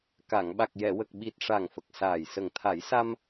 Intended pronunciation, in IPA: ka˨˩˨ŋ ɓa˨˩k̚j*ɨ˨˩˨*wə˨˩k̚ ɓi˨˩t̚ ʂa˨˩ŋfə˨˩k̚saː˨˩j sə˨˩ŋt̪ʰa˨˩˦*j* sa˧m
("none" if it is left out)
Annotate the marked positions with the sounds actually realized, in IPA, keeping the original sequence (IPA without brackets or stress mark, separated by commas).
ɛ˨˩˨, j